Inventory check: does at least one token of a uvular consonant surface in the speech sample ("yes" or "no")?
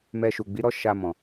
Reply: no